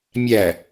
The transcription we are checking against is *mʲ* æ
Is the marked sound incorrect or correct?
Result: correct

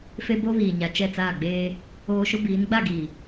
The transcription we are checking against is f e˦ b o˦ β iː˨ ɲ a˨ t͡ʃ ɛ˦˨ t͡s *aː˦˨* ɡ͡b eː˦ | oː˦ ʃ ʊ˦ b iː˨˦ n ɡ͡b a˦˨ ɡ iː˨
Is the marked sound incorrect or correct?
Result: correct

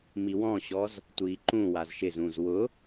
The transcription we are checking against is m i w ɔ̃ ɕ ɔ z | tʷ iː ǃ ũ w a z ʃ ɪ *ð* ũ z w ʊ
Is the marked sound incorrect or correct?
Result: incorrect: z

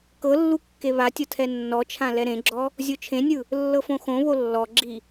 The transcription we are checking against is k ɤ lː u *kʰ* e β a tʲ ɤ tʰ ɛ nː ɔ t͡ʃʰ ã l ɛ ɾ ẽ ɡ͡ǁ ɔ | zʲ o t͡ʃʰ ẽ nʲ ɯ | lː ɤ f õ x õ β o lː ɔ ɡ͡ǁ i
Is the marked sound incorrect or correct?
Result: incorrect: kː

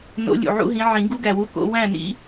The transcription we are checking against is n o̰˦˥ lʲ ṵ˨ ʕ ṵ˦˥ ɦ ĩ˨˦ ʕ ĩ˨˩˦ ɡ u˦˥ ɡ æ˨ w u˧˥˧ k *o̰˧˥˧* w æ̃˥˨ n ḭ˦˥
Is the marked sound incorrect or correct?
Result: correct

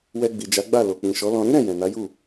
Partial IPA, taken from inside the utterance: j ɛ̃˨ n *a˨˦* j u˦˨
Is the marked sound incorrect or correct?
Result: correct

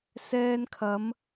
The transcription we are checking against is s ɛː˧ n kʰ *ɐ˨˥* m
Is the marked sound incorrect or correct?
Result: incorrect: ɐ˨˧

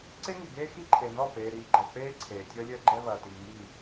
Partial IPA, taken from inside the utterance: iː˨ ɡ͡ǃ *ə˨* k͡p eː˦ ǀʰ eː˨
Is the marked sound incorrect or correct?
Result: incorrect: ɛ˨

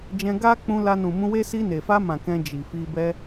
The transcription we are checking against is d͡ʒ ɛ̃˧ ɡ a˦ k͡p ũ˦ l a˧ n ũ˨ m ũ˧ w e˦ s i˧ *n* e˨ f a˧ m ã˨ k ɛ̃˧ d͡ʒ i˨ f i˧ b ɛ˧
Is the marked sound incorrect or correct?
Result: correct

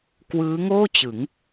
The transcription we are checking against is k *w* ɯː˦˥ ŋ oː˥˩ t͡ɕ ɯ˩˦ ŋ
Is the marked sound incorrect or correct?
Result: correct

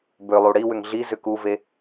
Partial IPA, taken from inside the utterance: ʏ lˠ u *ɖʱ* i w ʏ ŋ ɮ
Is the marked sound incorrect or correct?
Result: incorrect: ɽ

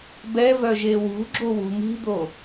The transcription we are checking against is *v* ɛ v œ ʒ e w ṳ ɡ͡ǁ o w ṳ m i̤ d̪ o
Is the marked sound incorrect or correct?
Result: incorrect: b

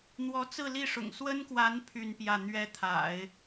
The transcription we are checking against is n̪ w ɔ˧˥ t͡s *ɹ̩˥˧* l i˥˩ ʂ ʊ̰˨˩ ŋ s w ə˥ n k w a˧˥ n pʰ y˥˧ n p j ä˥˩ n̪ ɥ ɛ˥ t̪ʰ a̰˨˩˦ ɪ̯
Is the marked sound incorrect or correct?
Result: correct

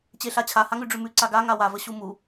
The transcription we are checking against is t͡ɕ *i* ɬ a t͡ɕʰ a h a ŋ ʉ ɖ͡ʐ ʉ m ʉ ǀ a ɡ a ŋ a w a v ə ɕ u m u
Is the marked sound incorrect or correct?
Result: incorrect: e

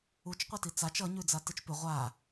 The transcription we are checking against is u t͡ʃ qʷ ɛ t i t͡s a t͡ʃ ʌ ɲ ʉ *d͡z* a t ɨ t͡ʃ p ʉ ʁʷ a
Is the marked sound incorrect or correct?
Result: correct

